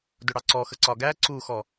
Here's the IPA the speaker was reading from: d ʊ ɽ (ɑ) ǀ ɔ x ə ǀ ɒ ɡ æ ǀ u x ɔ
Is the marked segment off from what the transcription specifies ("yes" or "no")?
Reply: no